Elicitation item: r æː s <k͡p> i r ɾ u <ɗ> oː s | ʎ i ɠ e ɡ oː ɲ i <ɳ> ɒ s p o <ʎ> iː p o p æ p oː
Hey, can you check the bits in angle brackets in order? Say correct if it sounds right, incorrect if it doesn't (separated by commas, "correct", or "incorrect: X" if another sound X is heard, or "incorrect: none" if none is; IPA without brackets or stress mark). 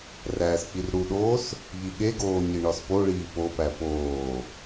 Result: correct, correct, correct, incorrect: ɭ